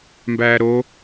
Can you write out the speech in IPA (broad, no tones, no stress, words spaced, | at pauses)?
mbæːɾo